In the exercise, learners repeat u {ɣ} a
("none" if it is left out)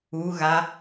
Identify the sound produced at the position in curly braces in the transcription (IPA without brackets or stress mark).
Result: ɣ